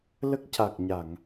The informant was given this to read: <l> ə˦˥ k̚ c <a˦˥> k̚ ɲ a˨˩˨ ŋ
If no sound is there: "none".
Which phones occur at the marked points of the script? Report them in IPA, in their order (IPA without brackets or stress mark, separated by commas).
l, a˨˩